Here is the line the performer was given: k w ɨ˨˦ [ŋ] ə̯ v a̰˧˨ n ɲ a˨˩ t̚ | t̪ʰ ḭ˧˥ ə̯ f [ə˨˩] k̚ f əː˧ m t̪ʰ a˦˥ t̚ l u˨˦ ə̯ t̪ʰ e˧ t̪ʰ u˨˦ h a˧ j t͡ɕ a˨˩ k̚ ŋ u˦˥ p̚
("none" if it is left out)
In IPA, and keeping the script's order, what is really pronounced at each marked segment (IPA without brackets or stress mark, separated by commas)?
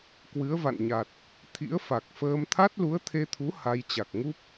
none, a˨˩